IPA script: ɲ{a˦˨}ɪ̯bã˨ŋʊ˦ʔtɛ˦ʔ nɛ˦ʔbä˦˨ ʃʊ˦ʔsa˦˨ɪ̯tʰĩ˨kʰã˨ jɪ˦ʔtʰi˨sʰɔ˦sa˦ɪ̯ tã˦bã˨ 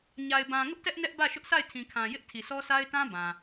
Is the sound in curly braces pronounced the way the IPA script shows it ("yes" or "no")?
no